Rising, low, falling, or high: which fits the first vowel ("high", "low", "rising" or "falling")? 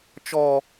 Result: falling